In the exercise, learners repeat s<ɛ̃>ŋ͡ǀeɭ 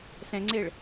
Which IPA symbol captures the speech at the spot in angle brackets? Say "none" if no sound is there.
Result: ɛ̃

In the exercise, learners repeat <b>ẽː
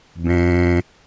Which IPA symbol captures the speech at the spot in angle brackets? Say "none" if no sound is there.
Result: b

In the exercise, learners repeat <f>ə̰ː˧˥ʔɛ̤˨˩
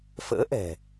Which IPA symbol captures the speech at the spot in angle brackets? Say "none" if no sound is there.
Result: f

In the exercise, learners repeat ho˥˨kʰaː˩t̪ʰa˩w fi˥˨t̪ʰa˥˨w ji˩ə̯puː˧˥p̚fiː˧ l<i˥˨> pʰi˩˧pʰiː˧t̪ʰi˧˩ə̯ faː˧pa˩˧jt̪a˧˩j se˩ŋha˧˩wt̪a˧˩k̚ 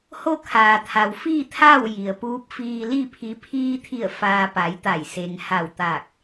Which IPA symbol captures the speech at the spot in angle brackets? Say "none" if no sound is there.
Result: i˥˨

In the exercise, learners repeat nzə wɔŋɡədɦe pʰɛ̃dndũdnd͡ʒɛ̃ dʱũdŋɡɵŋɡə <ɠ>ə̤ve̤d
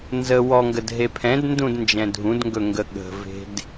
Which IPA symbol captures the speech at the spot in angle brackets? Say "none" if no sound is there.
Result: ɠ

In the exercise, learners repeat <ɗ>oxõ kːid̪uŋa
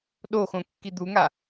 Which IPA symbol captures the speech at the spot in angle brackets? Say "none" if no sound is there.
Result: ɗ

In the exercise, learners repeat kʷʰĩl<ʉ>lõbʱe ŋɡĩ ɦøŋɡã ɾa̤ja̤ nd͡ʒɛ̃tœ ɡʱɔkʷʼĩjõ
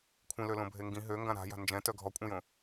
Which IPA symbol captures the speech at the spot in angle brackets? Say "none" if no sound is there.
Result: ø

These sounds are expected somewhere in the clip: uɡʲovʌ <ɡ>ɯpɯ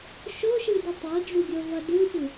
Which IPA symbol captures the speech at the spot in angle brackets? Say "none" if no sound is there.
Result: d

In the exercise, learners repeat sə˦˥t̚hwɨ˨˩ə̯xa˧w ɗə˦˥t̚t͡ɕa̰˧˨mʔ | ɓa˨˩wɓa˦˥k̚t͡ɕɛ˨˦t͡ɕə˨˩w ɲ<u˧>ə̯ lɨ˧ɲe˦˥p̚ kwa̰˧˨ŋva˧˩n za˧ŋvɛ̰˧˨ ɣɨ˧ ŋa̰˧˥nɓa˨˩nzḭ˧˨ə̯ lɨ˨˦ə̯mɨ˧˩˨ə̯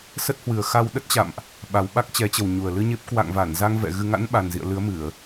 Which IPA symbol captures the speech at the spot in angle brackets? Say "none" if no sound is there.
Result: u˨˩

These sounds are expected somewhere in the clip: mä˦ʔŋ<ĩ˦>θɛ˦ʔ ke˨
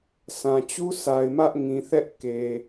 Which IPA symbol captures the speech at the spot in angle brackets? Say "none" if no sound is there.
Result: ĩ˨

